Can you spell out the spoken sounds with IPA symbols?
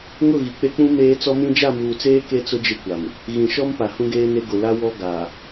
ŋ ʊ˦˨ ɣ i˨ k͡p e˦ k͡p ũ˦ m eː˦ t͡s ɔ˦ m ĩ˦ d͡ʒ a˦˨ m uː˨ t͡s eː˦ k e˦ t͡s ʊ˦ d͡ʒ ɪ˦ kʷ a˨ m | ɣ ĩ˨ ʃ ɔ˦ m p a˨ h ũ˦ ɡ eː˦ n e˦ ɡ ʊ˨ l a˦ w ɔ˦ ɡ a˨

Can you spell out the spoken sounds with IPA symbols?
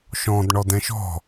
ʃ ɔ̃ d ɳ ɔ d ɛ̃ ʃ ɔ̤

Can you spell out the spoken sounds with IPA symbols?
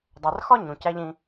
dˤ æ˨ r x ɒ˥ ɲ ũ˩ c æ˥ ʎ ĩ˦

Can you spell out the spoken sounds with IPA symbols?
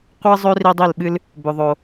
qʷ ɨ˦ zˤ ø˦ r i˦ dˤ i˦˨ l ɓ ɨ˦ l | b ʏ˨ ðˤ o˨

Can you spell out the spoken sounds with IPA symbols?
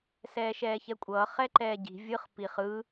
s ɛː ʃ ɛː ç ɛ kʷʼ ʌː χ ɛ ǃ ɛː ɟ i̤ vʲ ɯ χ p i χ ɯ

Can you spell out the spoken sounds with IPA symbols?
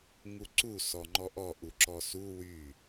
ŋ u ǀ u s ɔ ŋ͡ǃ ɔ ʔ ɔ ʔ u ǁ ɔ s u w y

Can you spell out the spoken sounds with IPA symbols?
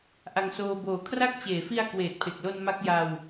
ʔ a˧ ŋ s oː˧ b oː˨˩ kʰ r a˦˥ k̚ t͡ɕ eː˩˦ f i˧ a̯ k w eː˨˩ t̚ pʰ e˨˩ k̚ l o˧ n m a˦˥ k̚ j a˧ w

